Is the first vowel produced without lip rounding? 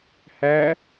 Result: yes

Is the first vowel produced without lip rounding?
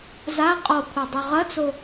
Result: yes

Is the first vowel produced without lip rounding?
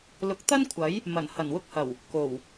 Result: no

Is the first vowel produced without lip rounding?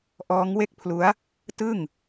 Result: no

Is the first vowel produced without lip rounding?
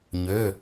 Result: no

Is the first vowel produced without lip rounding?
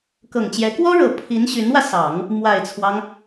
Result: yes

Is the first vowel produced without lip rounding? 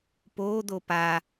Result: no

